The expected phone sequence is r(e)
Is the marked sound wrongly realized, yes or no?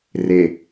no